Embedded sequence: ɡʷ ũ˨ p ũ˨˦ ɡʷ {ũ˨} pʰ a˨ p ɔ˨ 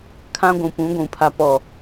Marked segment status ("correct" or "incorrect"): correct